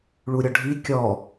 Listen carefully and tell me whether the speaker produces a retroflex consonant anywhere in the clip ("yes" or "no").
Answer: yes